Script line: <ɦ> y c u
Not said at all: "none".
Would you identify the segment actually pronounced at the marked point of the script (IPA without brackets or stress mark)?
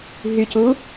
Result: ɦ